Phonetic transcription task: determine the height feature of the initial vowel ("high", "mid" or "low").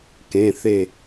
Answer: mid